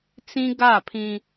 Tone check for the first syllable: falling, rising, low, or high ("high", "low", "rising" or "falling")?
high